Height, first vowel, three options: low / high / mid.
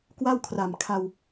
low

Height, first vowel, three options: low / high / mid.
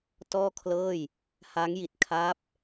mid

